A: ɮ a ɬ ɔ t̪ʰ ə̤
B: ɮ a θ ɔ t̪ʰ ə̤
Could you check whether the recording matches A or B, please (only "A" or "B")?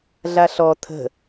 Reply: A